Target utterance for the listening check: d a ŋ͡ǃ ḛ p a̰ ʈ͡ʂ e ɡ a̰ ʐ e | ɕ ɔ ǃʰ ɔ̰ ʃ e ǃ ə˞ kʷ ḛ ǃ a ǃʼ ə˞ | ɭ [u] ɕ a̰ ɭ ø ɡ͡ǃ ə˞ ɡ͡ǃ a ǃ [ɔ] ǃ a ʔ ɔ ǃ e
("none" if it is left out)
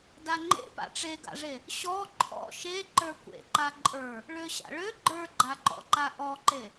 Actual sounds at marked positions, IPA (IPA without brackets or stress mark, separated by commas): ø, ɔ̰